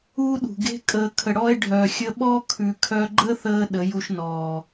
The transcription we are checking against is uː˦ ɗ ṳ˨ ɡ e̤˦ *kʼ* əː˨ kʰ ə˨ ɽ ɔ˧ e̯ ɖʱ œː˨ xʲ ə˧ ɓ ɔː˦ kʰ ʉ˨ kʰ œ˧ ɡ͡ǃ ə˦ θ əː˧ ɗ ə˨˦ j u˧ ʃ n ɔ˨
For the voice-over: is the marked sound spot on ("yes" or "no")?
yes